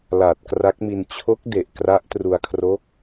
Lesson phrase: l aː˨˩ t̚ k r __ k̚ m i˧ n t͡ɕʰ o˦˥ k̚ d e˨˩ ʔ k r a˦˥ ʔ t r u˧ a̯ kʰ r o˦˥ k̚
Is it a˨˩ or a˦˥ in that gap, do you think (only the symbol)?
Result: a˦˥